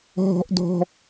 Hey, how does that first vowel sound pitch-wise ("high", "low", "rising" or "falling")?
high